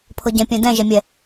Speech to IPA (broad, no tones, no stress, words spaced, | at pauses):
pʰɤɟɛ̃ pʲɛ̃dɛ̃ ʒɛmʲɛ